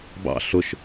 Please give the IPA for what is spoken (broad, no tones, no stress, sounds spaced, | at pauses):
b ɑ̰ ɬ ʊ ʃ